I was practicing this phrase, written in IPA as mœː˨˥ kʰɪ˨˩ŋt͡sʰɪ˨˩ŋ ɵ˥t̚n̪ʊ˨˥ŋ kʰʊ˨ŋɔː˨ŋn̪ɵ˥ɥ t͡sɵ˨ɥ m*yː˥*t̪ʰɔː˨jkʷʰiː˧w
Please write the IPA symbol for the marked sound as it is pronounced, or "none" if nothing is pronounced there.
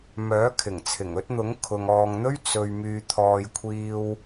yː˨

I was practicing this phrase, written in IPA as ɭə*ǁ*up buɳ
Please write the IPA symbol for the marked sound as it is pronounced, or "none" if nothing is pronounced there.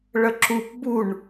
ǁ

